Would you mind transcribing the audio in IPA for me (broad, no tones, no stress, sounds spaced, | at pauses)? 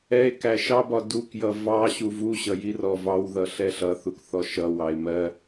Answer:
ɛ e̯ k æ ʃ ɑ b ɒ d u k j ʌ v ɑ ɕ u v u ɕ ʌ j i r ɔ v ɑ w ð ʌ ɬ ɛ ɬ ʌ θ u k θ ɔ ʃ ʌ w ɑ e̯ m ɜ